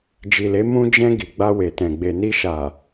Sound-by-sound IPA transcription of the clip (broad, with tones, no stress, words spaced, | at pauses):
d͡ʒi˨le˨˦ mũ˧d͡ʒɛ̃˧ ɡi˨ɡ͡ba˧we˨tɛ̃˨ ɡ͡be˨ni˧ ʃa˨